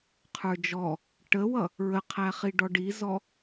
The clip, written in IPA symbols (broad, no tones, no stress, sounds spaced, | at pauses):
qʰ ə˞ d͡ʒ ɔ | ʈ ə w ʌ | ɹ ə qʰ æ χ i ɖ ɔ ɖ i z ɔ